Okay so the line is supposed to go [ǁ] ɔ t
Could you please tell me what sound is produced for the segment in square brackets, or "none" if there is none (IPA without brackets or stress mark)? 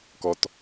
k